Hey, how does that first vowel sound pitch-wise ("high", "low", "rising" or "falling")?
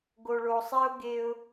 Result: low